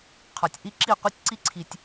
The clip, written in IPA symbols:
qʰ ɒ˨ tʲ ʔ i˦ ǁ i˦˨ qʷ i˦ tʲ ǀ i˦ ǀʰ i˧ tʲ

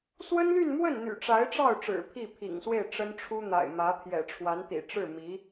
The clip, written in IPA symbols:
s w ə˥ n l y˥˧ n m w ə˥˩ n n̪ y̰˨˩ ʈ͡ʂ a˧˥ ɪ̯ ʈ͡ʂ ɑ˥˩ ʊ̯ ʈ͡ʂ ɻ̩˨˩ pʰ i˥˩ pʰ ḭ˨˩ ŋ s w e˥˩ ɪ̯ ʈ͡ʂ ə˥ n ʈ͡ʂʰ u˥ n̪ a̰˨˩ ɪ̯ m ä˧˥ pʰ j ɛ̰˨˩ ʈ͡ʂʰ w a˧˥ n t̪ ḭ˨˩ ʈ͡ʂ ɻ̩˥˩ m i˧˥

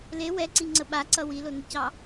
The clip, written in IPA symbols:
l e w ɛ ǀ i ŋ͡ǀ ə ɓ a ǀ ʌ w i l o n e c ɑ

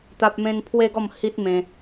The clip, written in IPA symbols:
t̪ a˦ p̚ m ẽ˦ n pʰ w e˦ ɡ ɔ˥˧ m h i˦ t̚ m ẽ˧

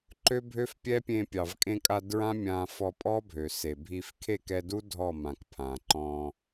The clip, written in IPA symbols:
ǃ ø˦ bʱ ø˦ f pʲ ɛ˦ pʲ ẽ˧ pʲ ɑ˨ v kʼ ẽ˧ kʼ a˧ d ɹ ã˦ mʲ ã˧ f ɔ˧ pʼ ɔ˦ bʱ ø˨ s e˨ bʱ i˧ f kʰ e˦˨ k ɛ˧ d u˦ dʱ ɔ˦˨ m ã˨ k pʰ ã˨ ǃ ɔ̃˧

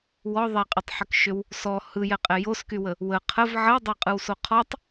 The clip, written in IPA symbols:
w ɔ ðˤ ɛ qʼ ɯ tˤ ħ ʏ k ʃ ʏ w | s ɔ h ɯ j ɛ qʼ ɛ j o s k y w ə | w ə qʰ ə v ʕ ə w dˤ ʏ qʼ ɯ w s o qʰ ɔ tˤ

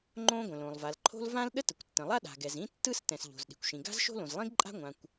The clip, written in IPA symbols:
ŋ͡ǃ õ˥ ɡʷ ə̃˩ l õ˩ lˠ v a˩ l ǃʰ o̤˥ l v ã˥ l ɗ ə˥ t ə˩ kʷ tː ə̃˩ lˠ a˥ ɗ a̤˩ ɡ ɛ˩ z ĩ˥ tː ɯ˥ s t ɛ̃˩ s ʎ o̤˩ z ɗ i̤˩ kʷ ʃ ĩ˩ ɡ a̤˥ z ʃ o̤˥ l õ˩ z lˠ ĩ˥ ɡ ǃʼ a̤˥ ŋʷ ã˩ kʷ

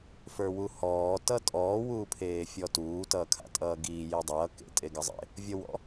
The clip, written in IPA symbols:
f ə˞ w u h ɔː t ʌ tʼ ɔː w uː pʰ eː fʲ ɔ t uː t ʌː kʰ a̰ tʼ ʌː ɡ iː j i dˤ ʌː k ḛ tʼ e ɡ ʌ zˤ ḛ | vʲ ʌ w ɔ̰

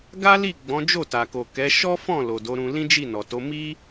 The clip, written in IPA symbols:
ɡ a˦ l i˦˨ ɡ͡b ɔ̃˨˦ d͡ʒ o˦˨ t a˨ k o˨ k ɛ˨˦ ʃ ɔ˦ f ɔ̃˦˨ l o˨ d o˨˦ ɾ ũ˧ l ĩ˦ d͡ʒ i˦˨ n ɔ˨ t o˨˦ m i˦

